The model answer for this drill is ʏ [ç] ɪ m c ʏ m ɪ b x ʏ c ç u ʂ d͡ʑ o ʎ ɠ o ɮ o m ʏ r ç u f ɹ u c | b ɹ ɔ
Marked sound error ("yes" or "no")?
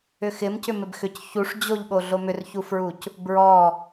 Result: yes